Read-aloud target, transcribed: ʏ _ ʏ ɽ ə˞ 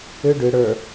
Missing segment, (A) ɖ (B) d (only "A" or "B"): A